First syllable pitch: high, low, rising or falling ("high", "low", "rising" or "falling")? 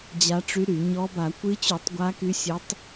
rising